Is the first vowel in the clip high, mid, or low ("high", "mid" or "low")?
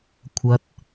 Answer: low